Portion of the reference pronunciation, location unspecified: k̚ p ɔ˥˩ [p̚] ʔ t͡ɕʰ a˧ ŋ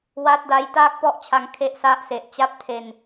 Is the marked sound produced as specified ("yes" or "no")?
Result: no